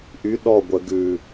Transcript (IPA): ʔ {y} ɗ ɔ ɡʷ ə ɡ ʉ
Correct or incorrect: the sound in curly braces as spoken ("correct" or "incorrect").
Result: correct